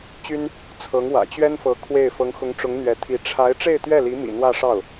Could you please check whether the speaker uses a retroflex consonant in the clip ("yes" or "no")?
yes